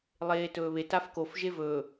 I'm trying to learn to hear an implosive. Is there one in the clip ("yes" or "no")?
no